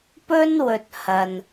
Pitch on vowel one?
high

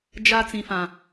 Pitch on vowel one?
high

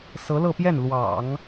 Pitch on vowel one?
rising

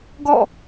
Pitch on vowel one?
falling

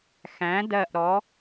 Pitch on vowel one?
rising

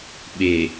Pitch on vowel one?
low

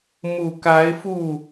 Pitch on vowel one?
low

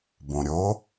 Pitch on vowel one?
low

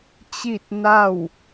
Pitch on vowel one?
falling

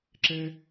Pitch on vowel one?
high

